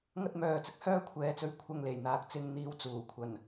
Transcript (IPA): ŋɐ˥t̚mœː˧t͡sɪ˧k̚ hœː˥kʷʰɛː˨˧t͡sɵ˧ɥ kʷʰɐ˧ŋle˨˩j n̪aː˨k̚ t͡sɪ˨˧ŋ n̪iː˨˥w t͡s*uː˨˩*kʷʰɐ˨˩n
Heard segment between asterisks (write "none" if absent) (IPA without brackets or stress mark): uː˨˩